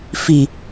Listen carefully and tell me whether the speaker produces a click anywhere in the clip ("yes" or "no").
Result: no